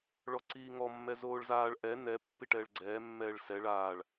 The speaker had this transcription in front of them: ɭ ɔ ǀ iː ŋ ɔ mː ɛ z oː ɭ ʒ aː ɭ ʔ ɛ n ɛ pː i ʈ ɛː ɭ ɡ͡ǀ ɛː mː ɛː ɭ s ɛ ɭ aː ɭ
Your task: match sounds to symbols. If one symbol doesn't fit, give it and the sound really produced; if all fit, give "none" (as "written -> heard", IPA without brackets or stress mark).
ʒ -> z